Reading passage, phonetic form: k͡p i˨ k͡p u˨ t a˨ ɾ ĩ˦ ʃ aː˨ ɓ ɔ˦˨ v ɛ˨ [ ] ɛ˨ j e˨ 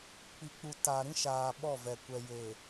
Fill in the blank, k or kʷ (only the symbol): kʷ